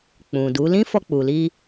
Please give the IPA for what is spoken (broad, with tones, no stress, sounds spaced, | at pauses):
k͡p ũ˨ d u˨˦ l ĩ˦ f ɔ˧ k͡p u˨ l i˧